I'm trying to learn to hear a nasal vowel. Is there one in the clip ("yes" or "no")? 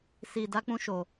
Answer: yes